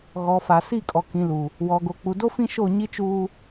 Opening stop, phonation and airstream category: ejective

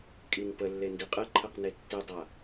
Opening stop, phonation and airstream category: ejective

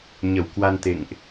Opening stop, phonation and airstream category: plain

